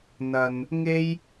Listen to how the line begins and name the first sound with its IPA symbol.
n̪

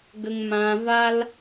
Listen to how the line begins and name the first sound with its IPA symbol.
ɡ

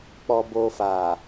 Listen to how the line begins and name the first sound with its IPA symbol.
k͡p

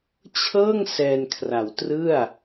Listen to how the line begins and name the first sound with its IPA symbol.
t͡ɕʰ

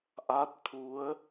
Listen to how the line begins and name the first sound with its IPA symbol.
ʔ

